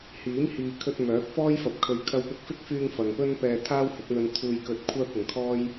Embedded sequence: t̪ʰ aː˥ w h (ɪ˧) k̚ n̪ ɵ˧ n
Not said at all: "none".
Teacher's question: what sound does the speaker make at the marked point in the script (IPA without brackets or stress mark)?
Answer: ɪ˨˥